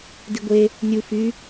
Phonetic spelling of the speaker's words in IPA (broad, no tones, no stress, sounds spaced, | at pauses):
d i ɡʷ e | nʲ u f y